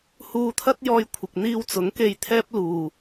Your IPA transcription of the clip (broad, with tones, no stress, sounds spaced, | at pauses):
h uː˧ t̪ʰ ɐ˥ t̚ j ɔː˧ j kʷʰ ɪ˨ k̚ n̪ iː˧ w t͡s ʊ˨˥ ŋ k e˧ j t̪ʰ ɛː˥ p̚ l uː˨